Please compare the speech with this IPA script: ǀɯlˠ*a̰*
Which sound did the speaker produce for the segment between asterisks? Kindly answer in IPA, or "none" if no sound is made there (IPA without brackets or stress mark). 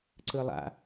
a̰